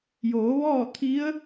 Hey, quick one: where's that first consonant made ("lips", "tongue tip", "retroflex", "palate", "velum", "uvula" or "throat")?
palate